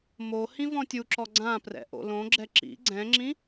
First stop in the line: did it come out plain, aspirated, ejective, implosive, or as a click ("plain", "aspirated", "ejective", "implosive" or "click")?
plain